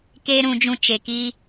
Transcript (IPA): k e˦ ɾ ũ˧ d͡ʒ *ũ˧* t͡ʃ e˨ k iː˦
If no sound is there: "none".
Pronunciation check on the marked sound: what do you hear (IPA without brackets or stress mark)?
ũ˧